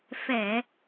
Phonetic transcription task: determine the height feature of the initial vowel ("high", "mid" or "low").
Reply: mid